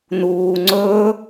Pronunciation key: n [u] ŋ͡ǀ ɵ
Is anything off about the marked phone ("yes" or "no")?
yes